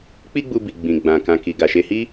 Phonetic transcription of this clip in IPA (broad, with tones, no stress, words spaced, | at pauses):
k͡pi˦ɡ͡bu˧bi˨ ɡ͡bĩ˨ɡ͡bã˨ kã˨ki˨ɡa˨ ʃe˧hi˦